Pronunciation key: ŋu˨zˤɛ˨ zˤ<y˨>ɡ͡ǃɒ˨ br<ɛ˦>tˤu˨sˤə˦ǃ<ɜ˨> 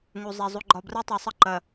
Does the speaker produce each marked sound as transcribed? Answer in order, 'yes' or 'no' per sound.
no, yes, yes

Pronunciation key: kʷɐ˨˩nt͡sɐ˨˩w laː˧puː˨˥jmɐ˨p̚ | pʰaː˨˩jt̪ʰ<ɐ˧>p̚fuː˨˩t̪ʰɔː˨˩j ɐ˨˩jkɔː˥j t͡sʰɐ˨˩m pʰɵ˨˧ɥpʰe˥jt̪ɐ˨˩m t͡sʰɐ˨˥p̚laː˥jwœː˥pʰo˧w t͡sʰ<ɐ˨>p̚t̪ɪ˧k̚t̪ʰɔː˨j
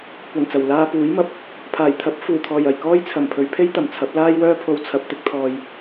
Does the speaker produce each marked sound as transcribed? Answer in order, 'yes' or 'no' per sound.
no, yes

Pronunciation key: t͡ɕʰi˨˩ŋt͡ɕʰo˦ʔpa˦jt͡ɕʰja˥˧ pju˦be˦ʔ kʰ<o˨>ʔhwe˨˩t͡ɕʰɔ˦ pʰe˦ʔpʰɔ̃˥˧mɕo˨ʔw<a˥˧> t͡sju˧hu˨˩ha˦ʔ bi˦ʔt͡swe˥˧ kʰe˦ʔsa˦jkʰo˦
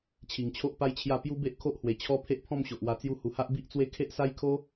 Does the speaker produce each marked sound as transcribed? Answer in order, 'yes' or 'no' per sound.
no, no

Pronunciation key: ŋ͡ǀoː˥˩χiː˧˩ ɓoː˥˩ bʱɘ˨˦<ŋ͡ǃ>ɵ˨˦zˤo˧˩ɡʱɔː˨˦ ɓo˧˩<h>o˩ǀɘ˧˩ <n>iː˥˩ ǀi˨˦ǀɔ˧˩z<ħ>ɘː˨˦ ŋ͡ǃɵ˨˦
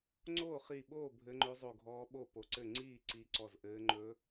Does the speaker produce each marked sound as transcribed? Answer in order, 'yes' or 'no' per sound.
yes, no, no, no

